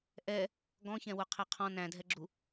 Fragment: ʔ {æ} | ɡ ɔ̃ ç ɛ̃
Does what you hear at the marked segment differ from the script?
yes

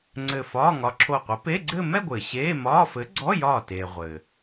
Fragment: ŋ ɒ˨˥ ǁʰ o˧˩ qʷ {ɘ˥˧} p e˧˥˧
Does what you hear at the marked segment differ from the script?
yes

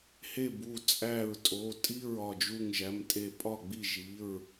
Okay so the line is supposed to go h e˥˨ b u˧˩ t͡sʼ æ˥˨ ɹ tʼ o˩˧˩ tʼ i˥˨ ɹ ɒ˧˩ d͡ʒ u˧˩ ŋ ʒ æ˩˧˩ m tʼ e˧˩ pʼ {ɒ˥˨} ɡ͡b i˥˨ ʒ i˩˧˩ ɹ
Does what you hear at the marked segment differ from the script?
no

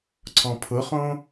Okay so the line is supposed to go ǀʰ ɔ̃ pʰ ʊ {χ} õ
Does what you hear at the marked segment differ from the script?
no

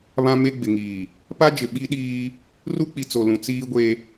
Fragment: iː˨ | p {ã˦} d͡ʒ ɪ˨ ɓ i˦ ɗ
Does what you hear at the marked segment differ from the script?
yes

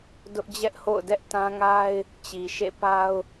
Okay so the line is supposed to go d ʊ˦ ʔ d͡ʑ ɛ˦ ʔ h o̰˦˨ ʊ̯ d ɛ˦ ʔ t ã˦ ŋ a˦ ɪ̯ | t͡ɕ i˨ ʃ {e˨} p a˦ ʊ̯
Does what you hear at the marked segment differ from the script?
yes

